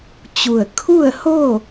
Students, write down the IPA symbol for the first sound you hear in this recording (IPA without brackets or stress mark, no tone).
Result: t͡ɕ